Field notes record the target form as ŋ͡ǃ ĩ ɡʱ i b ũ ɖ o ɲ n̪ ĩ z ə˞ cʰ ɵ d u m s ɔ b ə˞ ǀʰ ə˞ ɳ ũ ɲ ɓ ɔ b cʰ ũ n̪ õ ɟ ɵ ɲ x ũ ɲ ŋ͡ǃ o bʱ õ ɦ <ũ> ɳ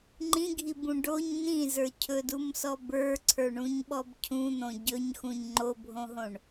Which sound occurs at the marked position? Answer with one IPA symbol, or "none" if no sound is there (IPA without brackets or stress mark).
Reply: õ